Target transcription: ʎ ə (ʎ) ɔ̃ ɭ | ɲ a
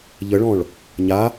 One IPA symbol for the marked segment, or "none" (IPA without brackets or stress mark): ɭ